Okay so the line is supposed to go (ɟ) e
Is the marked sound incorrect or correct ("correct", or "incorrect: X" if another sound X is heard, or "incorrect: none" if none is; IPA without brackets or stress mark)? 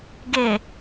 incorrect: ɡ